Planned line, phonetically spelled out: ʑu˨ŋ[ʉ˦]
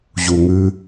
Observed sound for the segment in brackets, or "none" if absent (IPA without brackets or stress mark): ʉ˦